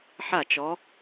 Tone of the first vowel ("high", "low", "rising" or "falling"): falling